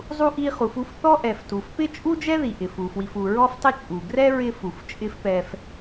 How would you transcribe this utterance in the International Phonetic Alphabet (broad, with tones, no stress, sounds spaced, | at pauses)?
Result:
zˤ u˧ ʔ i˧ χ u˩ f u˧ f θ ɔ˥ ʔ ɛ˩ f t u˩ f p ɪ˥ t͡ʃʼ u˥ d͡ʒ ɛ˥ ð i˩ ʔ ɪ˩ f u˩ f w i˩ f u˩ ɹ ɔ˥ f tˤ ɪ˥ t͡ʃʼ u˩ ɡ r ɛ˥ ɹ ɪ˥ f u˩ f t͡ʃʼ ɪ˥ f p ɛ˧ f